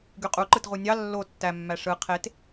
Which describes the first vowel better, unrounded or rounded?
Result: rounded